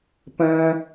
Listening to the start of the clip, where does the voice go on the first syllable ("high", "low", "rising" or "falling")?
high